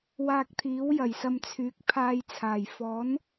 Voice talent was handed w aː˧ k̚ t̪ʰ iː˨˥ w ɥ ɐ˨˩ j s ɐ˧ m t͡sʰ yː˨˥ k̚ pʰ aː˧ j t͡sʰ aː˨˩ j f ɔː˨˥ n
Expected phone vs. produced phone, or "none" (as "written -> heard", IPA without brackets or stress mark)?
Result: ɥ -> j